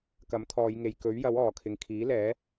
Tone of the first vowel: rising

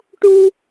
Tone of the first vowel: high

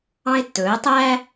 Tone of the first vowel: high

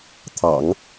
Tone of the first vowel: low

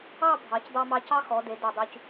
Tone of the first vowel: falling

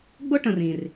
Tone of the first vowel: high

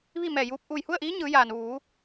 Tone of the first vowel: falling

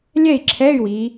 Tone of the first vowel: falling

